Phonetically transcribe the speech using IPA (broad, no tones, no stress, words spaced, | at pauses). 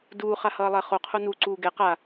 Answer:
duːχahʌːlˠɛ χoqʰo nuǀuː ɡɛ qa